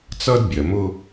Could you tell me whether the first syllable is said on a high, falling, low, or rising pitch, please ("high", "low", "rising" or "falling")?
high